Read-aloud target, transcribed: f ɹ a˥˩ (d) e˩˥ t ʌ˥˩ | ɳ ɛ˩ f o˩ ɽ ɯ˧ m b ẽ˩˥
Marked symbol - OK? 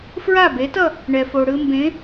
no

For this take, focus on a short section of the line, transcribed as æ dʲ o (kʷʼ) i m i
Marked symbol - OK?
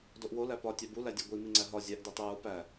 no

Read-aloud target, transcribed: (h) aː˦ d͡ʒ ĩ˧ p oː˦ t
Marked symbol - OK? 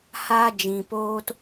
yes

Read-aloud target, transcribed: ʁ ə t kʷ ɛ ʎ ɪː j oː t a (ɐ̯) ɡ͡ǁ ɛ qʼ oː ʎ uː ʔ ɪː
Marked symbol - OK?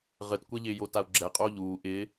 no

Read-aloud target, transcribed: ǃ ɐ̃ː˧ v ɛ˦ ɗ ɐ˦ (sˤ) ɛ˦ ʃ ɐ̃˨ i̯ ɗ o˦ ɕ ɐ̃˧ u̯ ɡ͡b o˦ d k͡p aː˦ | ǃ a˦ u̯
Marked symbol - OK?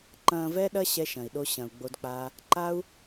no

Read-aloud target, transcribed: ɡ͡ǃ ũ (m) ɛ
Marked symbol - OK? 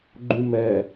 yes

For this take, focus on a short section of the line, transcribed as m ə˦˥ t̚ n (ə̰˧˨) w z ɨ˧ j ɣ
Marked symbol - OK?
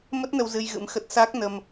no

